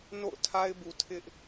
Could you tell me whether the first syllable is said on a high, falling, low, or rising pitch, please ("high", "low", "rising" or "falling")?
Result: falling